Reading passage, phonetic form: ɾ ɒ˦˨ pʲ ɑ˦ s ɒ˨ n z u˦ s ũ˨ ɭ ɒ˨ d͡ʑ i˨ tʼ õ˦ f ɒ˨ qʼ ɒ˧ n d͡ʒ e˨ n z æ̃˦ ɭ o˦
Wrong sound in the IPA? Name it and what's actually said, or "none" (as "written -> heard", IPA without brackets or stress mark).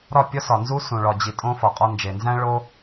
ɑ˦ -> ɒ˦